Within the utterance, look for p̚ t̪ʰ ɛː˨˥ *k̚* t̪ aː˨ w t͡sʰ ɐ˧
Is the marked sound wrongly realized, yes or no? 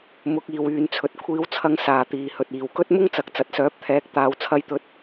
no